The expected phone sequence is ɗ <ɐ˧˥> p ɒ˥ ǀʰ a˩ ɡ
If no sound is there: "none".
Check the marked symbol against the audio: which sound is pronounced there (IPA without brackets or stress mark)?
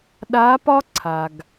a˧˥